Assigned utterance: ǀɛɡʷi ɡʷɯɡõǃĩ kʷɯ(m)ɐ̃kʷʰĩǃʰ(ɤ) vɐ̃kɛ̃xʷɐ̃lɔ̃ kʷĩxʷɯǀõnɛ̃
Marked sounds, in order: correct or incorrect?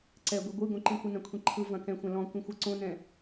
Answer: incorrect: n, incorrect: ɯ

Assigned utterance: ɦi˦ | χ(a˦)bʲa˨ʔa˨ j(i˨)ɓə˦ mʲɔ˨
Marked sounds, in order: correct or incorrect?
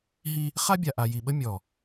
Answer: correct, correct

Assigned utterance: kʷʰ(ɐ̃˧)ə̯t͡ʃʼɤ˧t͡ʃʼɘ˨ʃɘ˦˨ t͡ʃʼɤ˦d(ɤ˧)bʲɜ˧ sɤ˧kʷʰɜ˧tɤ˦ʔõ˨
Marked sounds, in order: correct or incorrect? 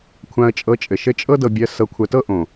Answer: incorrect: ã˧, correct

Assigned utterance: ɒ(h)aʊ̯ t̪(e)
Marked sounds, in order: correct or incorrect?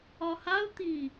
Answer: correct, incorrect: i

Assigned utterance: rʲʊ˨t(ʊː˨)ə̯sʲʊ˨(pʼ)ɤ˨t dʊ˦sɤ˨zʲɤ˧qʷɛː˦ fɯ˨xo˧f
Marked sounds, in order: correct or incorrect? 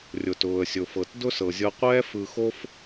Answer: correct, incorrect: f

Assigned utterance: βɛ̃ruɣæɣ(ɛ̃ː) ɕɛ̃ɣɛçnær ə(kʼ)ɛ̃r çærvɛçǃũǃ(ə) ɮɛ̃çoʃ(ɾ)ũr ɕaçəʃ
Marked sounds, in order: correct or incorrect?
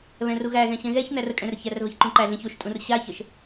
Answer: incorrect: ɛ̃, correct, incorrect: æ, incorrect: tʼ

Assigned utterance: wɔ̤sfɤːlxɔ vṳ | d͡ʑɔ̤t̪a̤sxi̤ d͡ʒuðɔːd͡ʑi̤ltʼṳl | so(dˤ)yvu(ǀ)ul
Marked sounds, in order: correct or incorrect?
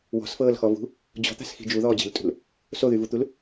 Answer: incorrect: ð, incorrect: t̪

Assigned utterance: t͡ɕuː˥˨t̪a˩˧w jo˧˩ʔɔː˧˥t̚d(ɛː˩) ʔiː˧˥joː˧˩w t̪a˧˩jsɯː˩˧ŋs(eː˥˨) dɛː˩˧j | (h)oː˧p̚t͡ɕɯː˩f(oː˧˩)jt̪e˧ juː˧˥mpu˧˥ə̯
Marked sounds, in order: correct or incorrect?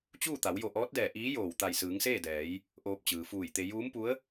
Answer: incorrect: ɛː˧˩, correct, incorrect: ʔ, incorrect: uː˧˩

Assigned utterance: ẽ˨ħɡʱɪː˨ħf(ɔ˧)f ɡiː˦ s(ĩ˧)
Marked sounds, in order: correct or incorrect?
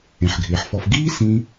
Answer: correct, correct

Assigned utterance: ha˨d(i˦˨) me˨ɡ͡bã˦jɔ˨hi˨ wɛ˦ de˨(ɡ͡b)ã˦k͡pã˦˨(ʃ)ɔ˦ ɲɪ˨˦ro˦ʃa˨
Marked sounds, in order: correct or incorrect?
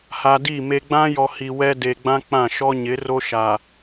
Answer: correct, correct, correct

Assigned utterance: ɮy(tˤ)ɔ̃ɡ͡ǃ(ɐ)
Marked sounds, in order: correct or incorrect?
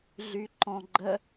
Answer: incorrect: ǃ, incorrect: ə

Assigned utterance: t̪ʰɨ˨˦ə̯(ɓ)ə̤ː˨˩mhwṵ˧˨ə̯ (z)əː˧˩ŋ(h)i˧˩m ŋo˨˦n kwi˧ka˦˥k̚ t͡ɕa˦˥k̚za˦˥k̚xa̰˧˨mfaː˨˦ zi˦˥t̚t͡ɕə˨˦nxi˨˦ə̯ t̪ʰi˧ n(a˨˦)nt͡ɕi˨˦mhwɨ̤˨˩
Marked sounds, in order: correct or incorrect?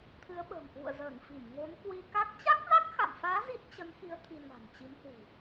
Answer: correct, correct, incorrect: f, incorrect: a̤˨˩

